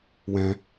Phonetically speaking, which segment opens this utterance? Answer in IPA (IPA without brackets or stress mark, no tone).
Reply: w